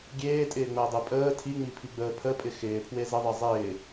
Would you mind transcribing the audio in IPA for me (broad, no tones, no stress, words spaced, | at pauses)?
ɡʲeːtʼɪːŋ͡məːdˤe pʼəː tʰiŋ͡mipʰiɡ͡bəː pʰəpʼɪ xɪːpʰwe zəðˤe zˤɪː